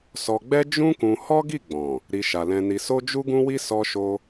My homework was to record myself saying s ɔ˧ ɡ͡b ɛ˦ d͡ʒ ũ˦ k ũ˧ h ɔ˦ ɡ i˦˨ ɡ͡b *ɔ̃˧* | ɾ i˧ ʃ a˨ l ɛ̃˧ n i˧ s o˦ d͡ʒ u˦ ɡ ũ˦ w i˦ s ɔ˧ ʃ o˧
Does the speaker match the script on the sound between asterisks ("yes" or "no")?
no